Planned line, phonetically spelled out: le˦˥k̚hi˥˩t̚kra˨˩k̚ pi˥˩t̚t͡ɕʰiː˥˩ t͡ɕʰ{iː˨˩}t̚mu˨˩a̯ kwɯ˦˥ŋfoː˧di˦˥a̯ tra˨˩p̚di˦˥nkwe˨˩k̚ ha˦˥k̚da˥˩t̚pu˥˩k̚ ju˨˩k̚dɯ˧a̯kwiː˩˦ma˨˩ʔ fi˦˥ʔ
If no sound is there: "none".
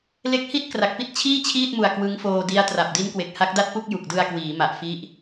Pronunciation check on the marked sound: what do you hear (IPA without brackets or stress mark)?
iː˥˩